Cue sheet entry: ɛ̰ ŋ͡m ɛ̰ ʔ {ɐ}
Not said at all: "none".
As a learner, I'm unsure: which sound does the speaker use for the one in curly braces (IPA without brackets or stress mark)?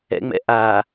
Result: a